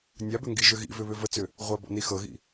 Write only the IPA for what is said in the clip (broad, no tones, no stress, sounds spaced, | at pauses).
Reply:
nʲ a b ʏ ŋ ɡ i ʒ ʏ ɣ ḭ v ʏ β ʏ v ə t͡s ʏ | ʁʷ a b ɔ̰ n i x ɤ ɣ ḭ